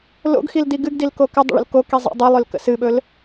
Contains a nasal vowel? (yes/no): no